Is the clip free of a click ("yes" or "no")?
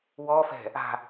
yes